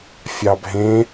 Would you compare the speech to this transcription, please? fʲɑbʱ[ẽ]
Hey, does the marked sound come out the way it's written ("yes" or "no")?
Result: yes